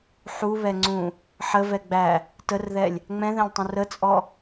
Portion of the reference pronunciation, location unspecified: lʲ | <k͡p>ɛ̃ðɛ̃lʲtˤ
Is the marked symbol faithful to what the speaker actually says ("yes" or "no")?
no